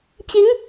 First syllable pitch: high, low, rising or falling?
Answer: rising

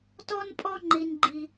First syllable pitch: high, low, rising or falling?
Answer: high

